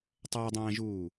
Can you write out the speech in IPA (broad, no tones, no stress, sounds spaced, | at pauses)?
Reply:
tˤ ɜ dˤ ɛ̃ː ʒ uː